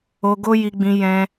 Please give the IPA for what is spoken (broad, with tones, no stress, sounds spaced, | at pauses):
o˧ ɡ o˦ j i˧ ɡ͡b ĩ˧ j ɛ̃˧